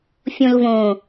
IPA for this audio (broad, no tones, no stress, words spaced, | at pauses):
fʲõlvõ